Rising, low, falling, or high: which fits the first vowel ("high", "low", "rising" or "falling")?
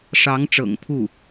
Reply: rising